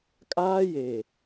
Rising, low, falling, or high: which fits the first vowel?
high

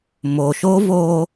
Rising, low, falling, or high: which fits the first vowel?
low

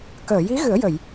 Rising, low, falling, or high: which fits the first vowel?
low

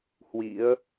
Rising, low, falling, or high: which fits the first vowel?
rising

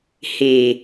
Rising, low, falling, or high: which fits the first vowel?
low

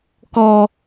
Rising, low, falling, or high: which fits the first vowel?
high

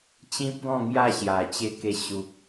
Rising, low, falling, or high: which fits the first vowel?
high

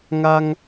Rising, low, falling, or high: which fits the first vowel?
high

